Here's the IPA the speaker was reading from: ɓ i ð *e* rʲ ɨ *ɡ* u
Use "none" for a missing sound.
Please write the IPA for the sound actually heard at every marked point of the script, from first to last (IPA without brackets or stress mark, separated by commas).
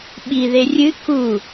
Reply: e, k